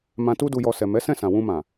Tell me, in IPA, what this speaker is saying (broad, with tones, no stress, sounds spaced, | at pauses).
m ã˧ t u˦ d u˧ j ɔ˧ s ɛ˨ m ɛ˨˦ s ɛ̃˦˨ s ã˨ w ũ˧ m ã˨